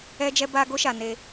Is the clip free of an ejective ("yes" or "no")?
yes